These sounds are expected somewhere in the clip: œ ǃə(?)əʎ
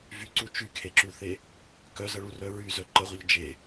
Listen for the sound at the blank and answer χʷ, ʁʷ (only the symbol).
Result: ʁʷ